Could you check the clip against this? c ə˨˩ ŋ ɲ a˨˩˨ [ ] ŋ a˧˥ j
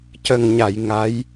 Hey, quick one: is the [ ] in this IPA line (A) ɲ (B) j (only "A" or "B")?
B